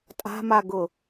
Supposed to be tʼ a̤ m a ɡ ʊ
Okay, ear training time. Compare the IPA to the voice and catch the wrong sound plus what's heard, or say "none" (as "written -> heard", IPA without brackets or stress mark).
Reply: none